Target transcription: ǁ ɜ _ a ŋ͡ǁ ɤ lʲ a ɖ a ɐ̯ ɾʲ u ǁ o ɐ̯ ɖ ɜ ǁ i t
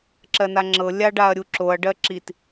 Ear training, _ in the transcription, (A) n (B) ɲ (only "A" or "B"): A